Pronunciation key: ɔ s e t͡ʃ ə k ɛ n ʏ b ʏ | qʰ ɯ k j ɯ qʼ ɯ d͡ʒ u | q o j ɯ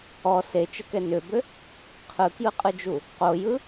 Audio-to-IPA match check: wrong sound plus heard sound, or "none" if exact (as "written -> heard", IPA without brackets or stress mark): none